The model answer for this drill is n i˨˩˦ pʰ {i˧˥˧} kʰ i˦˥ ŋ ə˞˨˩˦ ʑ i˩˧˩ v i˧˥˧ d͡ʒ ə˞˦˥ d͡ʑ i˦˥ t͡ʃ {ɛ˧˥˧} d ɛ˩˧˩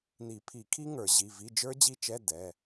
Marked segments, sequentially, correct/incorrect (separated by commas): incorrect, correct